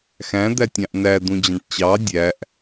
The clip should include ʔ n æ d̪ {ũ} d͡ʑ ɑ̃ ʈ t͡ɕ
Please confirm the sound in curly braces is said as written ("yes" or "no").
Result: yes